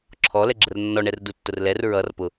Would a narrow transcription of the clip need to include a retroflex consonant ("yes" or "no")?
yes